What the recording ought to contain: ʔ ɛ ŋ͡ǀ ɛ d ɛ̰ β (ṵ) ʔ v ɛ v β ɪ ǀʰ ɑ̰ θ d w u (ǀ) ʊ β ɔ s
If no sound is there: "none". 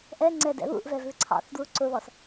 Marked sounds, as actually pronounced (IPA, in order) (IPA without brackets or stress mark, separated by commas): ṵ, ǀ